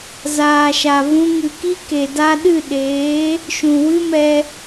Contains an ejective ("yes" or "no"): no